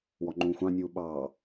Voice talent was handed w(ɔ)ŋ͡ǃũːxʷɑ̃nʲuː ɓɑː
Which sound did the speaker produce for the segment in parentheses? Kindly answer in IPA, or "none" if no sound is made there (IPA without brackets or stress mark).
ɔ